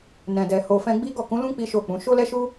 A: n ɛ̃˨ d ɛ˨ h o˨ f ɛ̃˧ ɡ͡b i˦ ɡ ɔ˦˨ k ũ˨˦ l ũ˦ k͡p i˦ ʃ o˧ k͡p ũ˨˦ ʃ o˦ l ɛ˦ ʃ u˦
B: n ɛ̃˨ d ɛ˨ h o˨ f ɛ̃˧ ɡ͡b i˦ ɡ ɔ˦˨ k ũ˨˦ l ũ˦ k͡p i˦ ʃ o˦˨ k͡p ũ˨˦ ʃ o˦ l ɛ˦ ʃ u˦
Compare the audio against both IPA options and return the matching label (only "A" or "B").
B